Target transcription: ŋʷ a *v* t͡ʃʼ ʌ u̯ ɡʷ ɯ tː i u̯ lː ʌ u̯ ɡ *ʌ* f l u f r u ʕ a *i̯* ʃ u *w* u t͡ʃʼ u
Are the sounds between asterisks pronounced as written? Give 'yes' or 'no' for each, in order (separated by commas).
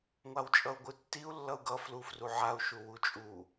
no, yes, no, yes